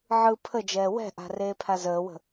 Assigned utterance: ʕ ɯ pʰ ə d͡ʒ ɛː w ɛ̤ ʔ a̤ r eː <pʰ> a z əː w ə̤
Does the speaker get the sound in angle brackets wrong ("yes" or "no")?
no